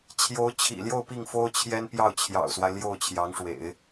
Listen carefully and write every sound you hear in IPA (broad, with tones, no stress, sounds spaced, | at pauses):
t͡ɕʰ j o˧˥ ʊ̯ t͡ɕʰ ḭ˨˩ l j o˥˧ ʊ̯ p i˥˩ ŋ f o˥ ʊ̯ t͡ɕʰ j ɛ˥ n p j ɑ˥˩ ʊ̯ t͡ɕʰ j ɑ̰˨˩ ʊ̯ s w a˦ ɪ̯ l j o˥˩ ʊ̯ t͡ɕʰ j ɑ˧˥ ŋ ʂ w ḛ˨˩˦ ɪ̯